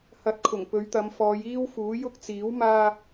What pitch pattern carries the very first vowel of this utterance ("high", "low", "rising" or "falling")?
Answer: rising